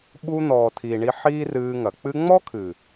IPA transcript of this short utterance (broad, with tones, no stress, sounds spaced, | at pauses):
ɓ u˧ n̪ ɔː˨ tʰ i˨ ɳ i˧ ħ iː˦ r ɨː˧ ŋ ɐ˨ k͡p ɨ˧ ŋ͡m ɔ˦ kʰ ɨ˨